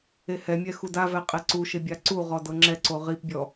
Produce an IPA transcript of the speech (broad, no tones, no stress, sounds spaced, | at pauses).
e h ɛ mʲ ɛ x u d a v ɛ qʼ ɛ ǀ u ʃ e bʲ a ǀ u ʁ ɔ d ɤ ŋ͡ǁ ɛ ǀ o ʁ i p bʲ ɔ